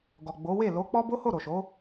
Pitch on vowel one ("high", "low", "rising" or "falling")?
low